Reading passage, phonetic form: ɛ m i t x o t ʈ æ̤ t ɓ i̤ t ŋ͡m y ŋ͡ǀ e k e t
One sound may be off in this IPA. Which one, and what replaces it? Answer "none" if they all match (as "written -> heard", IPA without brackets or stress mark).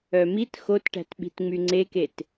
ɛ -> œ